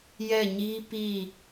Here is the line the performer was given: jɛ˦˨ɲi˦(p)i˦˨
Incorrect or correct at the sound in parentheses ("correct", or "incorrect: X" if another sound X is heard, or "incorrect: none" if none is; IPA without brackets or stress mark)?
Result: correct